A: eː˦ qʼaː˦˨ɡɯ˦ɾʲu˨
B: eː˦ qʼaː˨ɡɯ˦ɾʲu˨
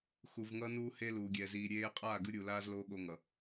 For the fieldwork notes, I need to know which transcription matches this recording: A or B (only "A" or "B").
A